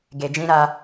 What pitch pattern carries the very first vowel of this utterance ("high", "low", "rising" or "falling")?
low